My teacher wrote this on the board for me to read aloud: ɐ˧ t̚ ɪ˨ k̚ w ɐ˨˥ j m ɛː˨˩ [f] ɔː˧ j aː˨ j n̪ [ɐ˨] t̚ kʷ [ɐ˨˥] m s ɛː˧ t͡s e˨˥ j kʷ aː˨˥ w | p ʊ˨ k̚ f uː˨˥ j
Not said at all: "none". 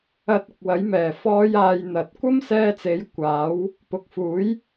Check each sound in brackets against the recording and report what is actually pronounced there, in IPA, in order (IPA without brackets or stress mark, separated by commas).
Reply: f, ɐ˨, ɐ˥